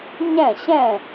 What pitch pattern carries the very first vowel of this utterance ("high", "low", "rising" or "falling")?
falling